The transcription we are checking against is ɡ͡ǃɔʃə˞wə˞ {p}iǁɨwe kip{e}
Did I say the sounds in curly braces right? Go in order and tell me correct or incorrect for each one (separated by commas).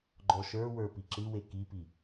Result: correct, incorrect